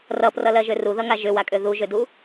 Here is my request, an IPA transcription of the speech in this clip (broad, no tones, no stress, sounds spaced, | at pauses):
r ʌ p r ʌ l ɜ ʒ ø r u ð ʌ ŋ a ʒ ʏ w a kʼ ø ð u ʒ ø d u